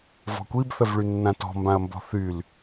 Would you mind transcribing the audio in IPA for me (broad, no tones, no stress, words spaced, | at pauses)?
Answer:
vɔ̤kʷib θəvɭynːãtɔ̤ mbãɐ̯mbɔ̤θyl